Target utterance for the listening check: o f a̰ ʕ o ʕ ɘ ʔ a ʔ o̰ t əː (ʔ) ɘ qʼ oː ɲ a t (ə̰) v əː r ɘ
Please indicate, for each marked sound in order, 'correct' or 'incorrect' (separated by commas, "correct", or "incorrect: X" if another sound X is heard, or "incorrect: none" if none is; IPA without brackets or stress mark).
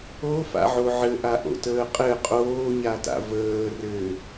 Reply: incorrect: qʼ, incorrect: a̰